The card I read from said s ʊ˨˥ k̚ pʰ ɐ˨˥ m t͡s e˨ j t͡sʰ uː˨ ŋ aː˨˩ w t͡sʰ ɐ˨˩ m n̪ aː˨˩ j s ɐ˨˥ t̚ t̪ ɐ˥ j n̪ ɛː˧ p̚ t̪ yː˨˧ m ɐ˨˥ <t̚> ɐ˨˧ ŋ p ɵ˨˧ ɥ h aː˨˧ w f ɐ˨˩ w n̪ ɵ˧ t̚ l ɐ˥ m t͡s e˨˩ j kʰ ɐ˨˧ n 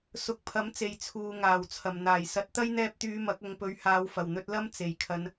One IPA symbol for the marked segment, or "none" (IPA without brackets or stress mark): k̚